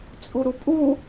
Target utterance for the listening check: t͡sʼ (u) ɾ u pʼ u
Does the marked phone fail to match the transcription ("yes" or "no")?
no